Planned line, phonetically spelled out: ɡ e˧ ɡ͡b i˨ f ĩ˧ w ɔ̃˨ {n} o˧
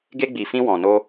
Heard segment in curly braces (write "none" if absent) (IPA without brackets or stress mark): n